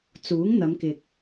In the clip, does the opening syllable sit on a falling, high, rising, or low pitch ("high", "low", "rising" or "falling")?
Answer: rising